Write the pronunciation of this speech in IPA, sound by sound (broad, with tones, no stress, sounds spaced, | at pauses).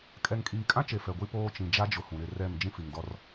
kʼ ɛ˨ ŋ kʼ iː˨ kʼ ã˦ t͡ʃ e˨ f ɛ˨ ɡʷ i˦ p oː˦ t͡ʃ ĩ˨ d͡ʒ a˦ d͡ʒ ʊ˨˦ h ũ˨ ɾ ɪ˦˨ r ɛ˦˨ m d͡ʒ ĩ˦ f i˨ ŋ d ɔ˦ r